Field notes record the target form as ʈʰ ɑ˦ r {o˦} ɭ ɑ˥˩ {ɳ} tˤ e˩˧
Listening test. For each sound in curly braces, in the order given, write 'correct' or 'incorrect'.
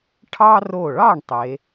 incorrect, correct

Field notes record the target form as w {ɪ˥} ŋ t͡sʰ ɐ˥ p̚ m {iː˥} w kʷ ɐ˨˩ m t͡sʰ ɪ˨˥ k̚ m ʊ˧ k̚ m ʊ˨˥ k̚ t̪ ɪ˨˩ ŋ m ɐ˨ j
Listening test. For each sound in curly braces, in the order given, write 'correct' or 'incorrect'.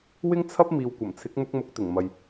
correct, incorrect

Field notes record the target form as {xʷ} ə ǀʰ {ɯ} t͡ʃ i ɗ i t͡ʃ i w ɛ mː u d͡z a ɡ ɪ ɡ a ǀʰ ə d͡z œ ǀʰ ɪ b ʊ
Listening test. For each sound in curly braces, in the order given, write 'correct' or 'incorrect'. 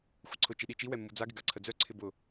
correct, incorrect

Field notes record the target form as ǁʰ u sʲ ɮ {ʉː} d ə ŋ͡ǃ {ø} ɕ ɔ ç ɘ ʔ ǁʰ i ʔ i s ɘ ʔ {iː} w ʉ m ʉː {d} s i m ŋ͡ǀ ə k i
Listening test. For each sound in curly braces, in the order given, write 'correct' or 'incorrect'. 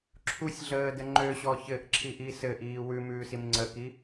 incorrect, correct, correct, incorrect

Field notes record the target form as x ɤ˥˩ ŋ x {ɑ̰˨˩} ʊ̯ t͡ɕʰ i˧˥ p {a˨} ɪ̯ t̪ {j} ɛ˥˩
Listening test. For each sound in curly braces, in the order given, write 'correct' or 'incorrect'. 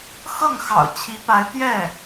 correct, incorrect, correct

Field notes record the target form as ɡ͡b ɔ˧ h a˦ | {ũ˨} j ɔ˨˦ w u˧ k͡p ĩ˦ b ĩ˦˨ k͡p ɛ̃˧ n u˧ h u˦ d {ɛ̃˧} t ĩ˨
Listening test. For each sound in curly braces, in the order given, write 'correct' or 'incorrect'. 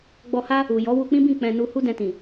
incorrect, correct

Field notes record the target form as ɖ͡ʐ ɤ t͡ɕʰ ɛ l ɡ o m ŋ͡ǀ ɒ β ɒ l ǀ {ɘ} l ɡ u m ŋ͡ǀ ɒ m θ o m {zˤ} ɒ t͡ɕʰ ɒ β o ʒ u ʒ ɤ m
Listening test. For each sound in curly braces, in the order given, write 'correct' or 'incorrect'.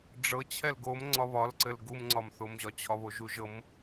correct, incorrect

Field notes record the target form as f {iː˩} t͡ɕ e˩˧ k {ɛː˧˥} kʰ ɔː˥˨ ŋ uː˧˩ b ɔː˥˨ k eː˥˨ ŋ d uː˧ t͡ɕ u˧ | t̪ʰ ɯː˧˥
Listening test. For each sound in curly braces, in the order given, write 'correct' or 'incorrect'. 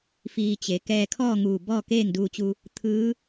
incorrect, incorrect

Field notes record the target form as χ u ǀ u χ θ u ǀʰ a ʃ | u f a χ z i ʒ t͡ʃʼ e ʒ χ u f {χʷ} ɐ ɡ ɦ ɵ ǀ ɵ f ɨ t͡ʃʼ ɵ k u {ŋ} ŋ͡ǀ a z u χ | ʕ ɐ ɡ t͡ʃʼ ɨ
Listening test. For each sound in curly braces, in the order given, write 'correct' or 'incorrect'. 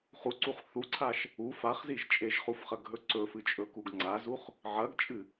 incorrect, incorrect

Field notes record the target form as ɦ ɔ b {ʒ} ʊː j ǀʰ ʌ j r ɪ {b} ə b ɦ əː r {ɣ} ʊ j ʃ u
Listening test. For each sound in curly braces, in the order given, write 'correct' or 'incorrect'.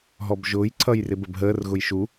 correct, correct, correct

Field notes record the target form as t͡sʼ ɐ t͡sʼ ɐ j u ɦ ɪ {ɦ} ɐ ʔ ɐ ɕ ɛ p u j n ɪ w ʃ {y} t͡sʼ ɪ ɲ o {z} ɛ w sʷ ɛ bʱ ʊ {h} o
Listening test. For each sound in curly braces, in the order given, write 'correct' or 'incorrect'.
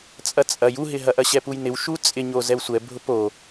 correct, incorrect, correct, incorrect

